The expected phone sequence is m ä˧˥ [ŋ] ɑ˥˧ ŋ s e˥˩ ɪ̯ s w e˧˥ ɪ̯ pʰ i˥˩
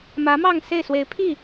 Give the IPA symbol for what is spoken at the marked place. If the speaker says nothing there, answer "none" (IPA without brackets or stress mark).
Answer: m